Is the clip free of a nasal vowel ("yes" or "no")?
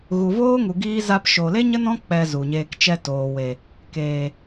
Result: no